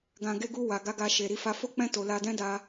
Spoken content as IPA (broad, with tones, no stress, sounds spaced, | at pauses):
ɡ ã˨ ɡ e˧ ɡ u˧ w a˨ ɡ a˧ ɡ a˧ ʃ e˨ ɾ i˧ f a˧ f o˦ k͡p ɛ̃˦˨ t o˨ l a˧ d ɛ̃˦ d a˧